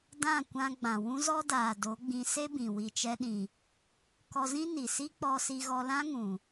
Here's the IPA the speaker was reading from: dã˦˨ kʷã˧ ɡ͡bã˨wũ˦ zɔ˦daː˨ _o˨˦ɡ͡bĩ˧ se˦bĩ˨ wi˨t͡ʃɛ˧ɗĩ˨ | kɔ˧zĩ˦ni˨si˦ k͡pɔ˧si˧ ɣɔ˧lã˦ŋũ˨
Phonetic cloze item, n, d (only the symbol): d